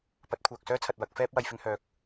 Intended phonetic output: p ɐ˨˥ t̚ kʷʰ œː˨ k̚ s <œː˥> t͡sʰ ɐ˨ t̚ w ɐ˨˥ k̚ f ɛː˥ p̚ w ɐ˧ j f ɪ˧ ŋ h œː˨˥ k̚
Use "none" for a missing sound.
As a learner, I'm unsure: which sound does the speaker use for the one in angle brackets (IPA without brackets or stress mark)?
œː˥